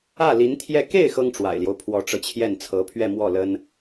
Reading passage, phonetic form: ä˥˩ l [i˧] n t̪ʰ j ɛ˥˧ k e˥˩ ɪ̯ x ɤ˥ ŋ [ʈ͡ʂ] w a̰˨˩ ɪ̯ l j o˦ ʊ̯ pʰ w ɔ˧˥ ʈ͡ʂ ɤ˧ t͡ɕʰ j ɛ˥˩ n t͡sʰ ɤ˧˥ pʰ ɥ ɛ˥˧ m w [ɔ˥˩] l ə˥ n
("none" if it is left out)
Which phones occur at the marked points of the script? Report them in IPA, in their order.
i˧˥, ʈ͡ʂ, ɔ˥˩

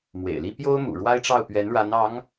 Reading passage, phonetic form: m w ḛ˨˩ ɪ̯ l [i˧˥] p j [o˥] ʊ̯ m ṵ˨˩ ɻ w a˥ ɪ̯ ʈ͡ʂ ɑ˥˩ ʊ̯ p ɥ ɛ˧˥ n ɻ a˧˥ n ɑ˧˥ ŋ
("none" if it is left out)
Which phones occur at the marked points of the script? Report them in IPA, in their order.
i˥, o˥

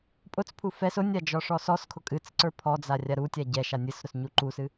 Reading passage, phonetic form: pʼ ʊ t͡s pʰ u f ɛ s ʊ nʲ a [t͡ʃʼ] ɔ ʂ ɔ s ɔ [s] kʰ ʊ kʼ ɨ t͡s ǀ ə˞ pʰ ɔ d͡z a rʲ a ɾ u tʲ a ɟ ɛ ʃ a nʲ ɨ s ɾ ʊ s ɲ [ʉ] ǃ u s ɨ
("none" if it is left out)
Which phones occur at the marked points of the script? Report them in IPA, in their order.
d͡ʒ, s, u

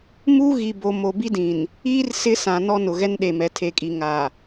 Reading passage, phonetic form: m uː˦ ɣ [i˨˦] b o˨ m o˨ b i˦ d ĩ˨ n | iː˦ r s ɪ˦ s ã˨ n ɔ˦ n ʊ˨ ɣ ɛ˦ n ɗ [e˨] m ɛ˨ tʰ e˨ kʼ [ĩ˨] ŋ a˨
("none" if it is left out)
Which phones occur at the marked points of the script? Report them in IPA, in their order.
i˨, e˨, i˨

